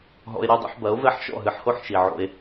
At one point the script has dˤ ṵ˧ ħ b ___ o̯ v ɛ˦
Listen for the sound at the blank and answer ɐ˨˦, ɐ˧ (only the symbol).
ɐ˨˦